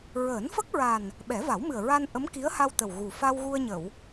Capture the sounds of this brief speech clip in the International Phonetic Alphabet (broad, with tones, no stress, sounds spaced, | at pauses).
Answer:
ɹ əː˨˩˦ n f ə˦˥ k̚ ɹ a˨˩ n | ɓ ɛ˨˩˦ v a˨˩˦ w m ɨ˨˩ ə̯ ɹ a˧ n ʔ ə˧˥ m k i˧˥ ə̯ h a˧ w t̪ ə˨˩ w ɣ u˨˩ f a˧ w ɣ u˧ ə̯ ɲ ə˨˩˨ w